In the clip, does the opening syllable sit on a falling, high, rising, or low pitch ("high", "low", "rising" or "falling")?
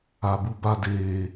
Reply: low